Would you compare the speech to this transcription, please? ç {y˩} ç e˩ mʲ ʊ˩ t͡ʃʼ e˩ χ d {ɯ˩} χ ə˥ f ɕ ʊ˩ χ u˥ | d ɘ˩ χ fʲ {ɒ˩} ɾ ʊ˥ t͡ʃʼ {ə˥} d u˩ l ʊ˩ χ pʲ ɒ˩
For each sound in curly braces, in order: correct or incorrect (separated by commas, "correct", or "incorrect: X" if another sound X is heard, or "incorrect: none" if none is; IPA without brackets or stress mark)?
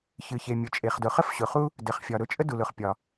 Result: incorrect: ɨ˩, incorrect: ʊ˩, correct, correct